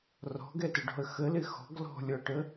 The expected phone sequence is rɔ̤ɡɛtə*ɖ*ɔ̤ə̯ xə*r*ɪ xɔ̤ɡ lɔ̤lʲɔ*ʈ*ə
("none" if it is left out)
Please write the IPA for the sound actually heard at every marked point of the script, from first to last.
ɖ, l, ʈ

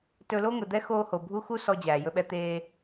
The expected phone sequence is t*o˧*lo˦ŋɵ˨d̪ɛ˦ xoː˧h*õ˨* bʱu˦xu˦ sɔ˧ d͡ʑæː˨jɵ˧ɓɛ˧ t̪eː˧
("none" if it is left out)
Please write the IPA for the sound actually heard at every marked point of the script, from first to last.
ɵ˧, o˨

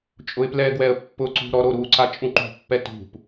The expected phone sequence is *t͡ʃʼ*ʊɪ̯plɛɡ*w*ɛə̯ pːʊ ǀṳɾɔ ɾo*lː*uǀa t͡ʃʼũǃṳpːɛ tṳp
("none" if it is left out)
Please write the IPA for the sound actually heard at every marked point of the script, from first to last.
t͡ʃʼ, w, ɾ

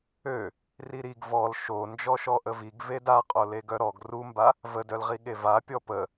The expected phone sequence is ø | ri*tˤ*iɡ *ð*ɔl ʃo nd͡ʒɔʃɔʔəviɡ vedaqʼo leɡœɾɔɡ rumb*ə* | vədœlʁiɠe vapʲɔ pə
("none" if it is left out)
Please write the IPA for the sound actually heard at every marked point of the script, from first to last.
ɾ, v, a

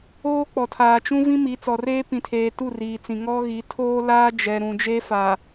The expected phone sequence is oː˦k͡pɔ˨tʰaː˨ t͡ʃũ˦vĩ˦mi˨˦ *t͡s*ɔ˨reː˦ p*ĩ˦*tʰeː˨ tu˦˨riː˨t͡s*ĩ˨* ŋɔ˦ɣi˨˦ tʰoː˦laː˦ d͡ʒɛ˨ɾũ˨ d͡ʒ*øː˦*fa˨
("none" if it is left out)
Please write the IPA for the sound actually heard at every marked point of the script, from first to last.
t͡s, ĩ˨, ĩ˨, eː˦

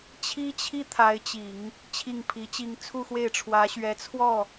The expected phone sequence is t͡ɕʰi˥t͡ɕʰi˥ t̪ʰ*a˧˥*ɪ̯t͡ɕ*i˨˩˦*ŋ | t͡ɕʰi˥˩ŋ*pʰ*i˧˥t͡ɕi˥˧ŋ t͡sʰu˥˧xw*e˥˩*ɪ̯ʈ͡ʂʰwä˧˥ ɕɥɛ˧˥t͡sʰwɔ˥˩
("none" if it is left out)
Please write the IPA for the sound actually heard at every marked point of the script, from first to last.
a˧˥, i˨˩˦, pʰ, e˥˩

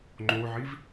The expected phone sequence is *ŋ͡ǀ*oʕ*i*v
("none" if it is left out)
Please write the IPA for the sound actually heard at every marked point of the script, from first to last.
ŋ͡ǃ, i

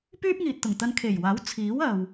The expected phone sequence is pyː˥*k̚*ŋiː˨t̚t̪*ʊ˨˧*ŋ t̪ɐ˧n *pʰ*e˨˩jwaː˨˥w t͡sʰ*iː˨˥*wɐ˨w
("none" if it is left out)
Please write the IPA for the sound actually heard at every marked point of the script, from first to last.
p̚, ʊ˨˩, kʰ, iː˨˥

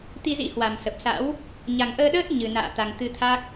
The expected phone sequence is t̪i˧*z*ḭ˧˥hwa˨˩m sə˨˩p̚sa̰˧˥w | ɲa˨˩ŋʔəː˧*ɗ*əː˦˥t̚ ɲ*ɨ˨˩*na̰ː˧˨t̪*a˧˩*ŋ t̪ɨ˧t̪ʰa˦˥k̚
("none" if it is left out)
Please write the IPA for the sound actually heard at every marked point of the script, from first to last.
z, ɗ, ɨ˨˩, a˨˩

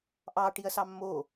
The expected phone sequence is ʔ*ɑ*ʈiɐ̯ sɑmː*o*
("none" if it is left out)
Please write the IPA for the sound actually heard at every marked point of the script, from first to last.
ɑ, o

